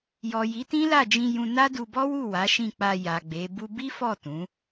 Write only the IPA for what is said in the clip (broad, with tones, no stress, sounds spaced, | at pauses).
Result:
j ɔ˨ j i˨˦ t ĩ˦ l a˦˨ d͡ʒ ĩ˧ j ũ˧ n a˦ d u˧ b ɔ˦ w u˦˨ w a˨˦ ʃ ĩ˦˨ k͡p a˧ j a˨ ɡ͡b e˨˦ b u˦ b i˦ f ɔ˦˨ t ũ˨˦